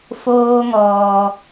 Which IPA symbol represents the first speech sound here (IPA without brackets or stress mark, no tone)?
f